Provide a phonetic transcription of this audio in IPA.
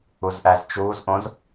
u z ʔ æ z t͡ʃ uː z ʔ õ z

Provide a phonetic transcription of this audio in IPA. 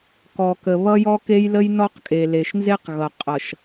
k ɔ˨ k ə˨ β ʌ˦ j ɔ˦ k e˦ j l ə˦ j n ɔ˦ q kʼ e˨ l e˨ ʃ n z e˦ q ɣ ʌ˨ qʼ ʌ˨ ʃ

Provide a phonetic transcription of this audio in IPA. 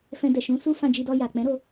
f ɛ̃˧ d ɛ˨ ʃ ũ˨˦ s u˦ f ã˧ d͡ʒ i˧ d ɔ˧ j a˨ k͡p ɛ̃˨˦ ɾ o˧

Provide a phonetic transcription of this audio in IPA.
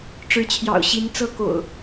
ʈ͡ʂ ɻ̩˨˦ t͡ɕʰ j ɑ̰˨˩ ʊ̯ ɕ i˨˦ n t͡s ɤ˦ k o̰˨˩ ʊ̯

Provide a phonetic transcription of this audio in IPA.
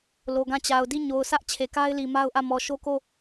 l o˨ ɡ ã˦˨ t͡ɕ a˨ ʊ̯ d i˦˨ ɲ o˨ ʊ̯ sʰ ä˦ ʔ t͡ɕʰ e˨ k a˦ ɪ̯ l i˨ m a˦ ʊ̯ ʔ ä˦˨ m ɔ˨ ʃ o˦ k o˦˨

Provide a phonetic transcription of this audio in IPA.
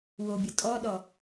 w o bʲ ʌ tʼ ɔ ɗ ɔ

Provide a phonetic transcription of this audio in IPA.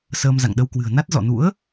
s əː˧ m z a̰˧˨ ŋ ɗ ə˧ w k w ɨ̤˨˩ ə̯ n a˦˥ t̚ z ɔ̰˧˨ n ṵ˧˥ ə̯

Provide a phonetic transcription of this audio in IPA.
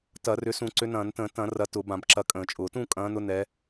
t ɐ˧˩˧ r ʏ˨˦ s ũ˧˩˧ ǀ ʏ˨˦ n ɐ̃ː˧˩˧ n t ə̃ː˧˩˧ t ɐ̃˧˩˧ r ɐ˨˦ t ʊ˧˩˧ b ã˧˩˧ b ǁ ɐ˨˦ kʼ ə̃ː˧˩˧ t͡ʃʼ ʊː˧˩˧ t ũ˥˨ kʼ ɐ̃ː˨˦ n ʊ˨˦ n ɛ˨˦

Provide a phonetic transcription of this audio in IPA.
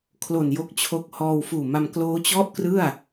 kʰ l o˨˩ n j o˦˥ k̚ t͡ɕʰ o˦˥ k̚ h ɔː˧ w f uː˨˩ m a˧ m k l oː˦˥ t͡ɕ ɔ˥˩ ʔ k r ɯ˥˩ a̯

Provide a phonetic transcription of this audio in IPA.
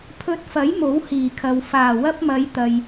pʰ ɵ˧ t̚ f ɐ˨˥ j m o˨˥ w h iː˨˩ kʰ ɐ˨ w f aː˨˩ w ɐ˥ p̚ m ɐ˨˧ j t̪ ɐ˨ j

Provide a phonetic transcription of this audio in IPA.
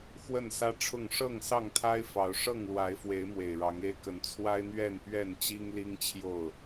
x w ə˥˨ n s ä˦ ʈ͡ʂʰ ʊ˥˨ ŋ ʂ ɤ˥˨ ŋ s ɑ˥˨ ŋ t̪ʰ a˦ ɪ̯ f ɑ˨˦ ʊ̯ ʂ ɤ˥˨ ŋ l w a˨˦ ɪ̯ f w e˨˦ ɪ̯ m w e˨˩ ɪ̯ ɻ ɑ˨˦ ŋ e˦ ɪ̯ k ə˨˦ n t͡sʰ w a˦ ɪ̯ n̪ ɥ ɛ˥˨ n p ɥ ɛ˥˨ n t͡ɕ i˦ ŋ l i˦ ŋ t͡ɕʰ j o˥˨ ʊ̯

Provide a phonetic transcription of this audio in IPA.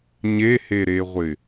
ɲ e h e ɾ e ʁʷ ɪ

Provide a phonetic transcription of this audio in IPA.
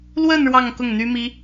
l w ə˥˧ n ɻ w ɑ˥˧ ŋ k ʊ˥˩ ŋ n̪ y˥ m i˥

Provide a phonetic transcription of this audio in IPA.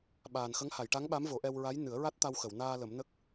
ɓ aː˨˩ n x ə˧˥ ŋ h a˨˩˨ j ʈ a˧˥ ŋ ɓ a˧˥ m v o˨˩˦ ʔ ɛ˧ w ɹ a˧˥ j n ɨ˨˩˦ ə̯ ɹ a˦˥ t̚ t̪ a˧ w x ə˨˩˨ w n aː˧ l ə˨˩˦ m n ə˦˥ k̚

